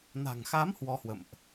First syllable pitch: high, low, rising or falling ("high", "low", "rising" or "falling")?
low